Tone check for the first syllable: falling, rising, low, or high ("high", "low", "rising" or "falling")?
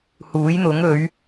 rising